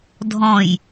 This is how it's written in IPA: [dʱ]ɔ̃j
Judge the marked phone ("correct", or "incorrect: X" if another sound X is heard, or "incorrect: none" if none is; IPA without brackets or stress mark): correct